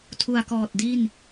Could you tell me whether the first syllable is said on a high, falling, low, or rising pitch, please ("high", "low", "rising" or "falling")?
low